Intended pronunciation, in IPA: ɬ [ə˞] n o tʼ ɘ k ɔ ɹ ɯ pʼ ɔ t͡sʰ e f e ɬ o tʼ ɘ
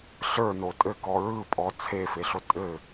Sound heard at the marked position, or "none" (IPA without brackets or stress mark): ə˞